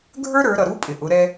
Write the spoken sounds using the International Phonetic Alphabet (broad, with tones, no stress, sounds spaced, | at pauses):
ɡʱ ə˞˥ ɾ ə˞˩˧ ɾ ʌ˩ ɾ u˧˥ pʼ ɪ˩ ʔ ʊ˩˧ ɾ ɛ˧